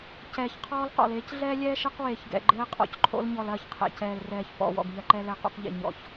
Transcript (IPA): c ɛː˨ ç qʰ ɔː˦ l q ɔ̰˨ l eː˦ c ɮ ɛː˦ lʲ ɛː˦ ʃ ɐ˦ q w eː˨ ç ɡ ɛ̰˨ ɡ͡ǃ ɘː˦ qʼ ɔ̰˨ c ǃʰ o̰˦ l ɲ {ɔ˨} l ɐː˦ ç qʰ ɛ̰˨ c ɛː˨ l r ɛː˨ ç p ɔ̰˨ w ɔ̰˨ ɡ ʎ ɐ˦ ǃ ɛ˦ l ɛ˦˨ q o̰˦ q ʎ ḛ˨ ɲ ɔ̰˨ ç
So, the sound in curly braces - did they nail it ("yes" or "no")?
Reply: yes